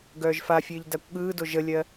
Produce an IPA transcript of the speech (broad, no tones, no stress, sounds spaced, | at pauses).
ɡ œː ʒ f a fʲ ɘː ʎ d a kʷ ɠ ɯː d o ʒ ə lʲ ɜ